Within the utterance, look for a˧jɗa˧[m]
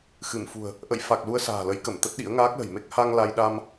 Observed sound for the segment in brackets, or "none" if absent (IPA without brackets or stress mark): m